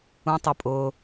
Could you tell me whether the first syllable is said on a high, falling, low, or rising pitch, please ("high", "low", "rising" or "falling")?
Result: high